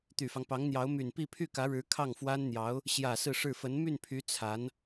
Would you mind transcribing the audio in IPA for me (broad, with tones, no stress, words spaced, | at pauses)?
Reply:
t̪y˨˩fɑ˦ŋ pɑ˧˥ŋn̪jɑ˧˥ʊ̯ my˨˩npi˥˧ pʰy˥˩kä˧˥ɻɻ̩˧˥ kʰɑ˥˩ŋfwa˥nn̪jɑ˧˥ʊ̯ | ɕjä˨˩ sɹ̩˥˧ʂɻ̩˥˩ fə˧˥n my˥˩npʰy˧˥ t͡sʰa˧˥n